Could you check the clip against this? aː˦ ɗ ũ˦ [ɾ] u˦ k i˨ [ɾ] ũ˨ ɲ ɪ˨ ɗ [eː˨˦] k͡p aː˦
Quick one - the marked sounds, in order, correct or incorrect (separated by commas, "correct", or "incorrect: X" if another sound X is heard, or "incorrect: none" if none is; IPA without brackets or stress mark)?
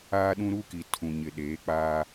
correct, incorrect: tʰ, correct